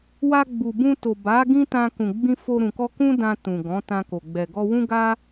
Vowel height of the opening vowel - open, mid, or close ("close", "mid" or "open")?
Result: open